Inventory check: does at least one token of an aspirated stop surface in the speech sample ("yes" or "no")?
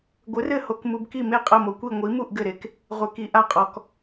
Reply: no